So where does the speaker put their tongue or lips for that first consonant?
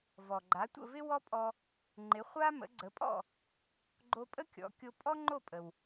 lips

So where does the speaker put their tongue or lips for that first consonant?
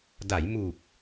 tongue tip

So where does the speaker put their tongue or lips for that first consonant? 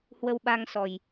throat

